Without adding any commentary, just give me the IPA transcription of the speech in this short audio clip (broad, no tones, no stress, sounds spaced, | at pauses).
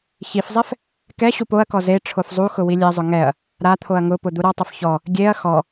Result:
ç i f zˤ ɛ f | k ɛ ɕ u p o ɐ̯ k ɔ z e ʈ͡ʂʰ o f zˤ u x ʊ w i lʲ ɛ zˤ ʊ ŋ ɛ ɐ̯ | ɾ a t̪ʰ o ɐ̯ ŋ ʊ p ʊ d̪ u ɾ ɔ tˤ o f ç ɔ | ɡʲ e ɐ̯ x ɔ